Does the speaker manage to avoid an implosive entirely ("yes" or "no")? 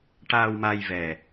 yes